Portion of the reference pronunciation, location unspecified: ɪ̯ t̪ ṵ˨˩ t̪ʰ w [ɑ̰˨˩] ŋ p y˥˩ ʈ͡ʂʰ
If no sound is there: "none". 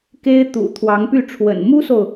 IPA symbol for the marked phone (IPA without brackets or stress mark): ɑ˧˥